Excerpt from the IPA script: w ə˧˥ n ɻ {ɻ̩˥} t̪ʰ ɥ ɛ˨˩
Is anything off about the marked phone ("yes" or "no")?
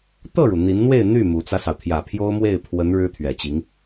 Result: no